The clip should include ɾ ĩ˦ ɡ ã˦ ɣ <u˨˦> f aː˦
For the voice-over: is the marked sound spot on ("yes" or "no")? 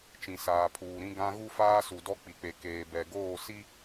no